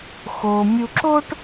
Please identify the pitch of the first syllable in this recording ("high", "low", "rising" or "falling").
low